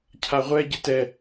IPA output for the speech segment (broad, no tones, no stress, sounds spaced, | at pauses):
cʰ a ʁʷ ɛ ɟ ɪ t ɛ